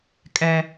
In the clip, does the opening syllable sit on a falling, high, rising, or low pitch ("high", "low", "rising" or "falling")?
high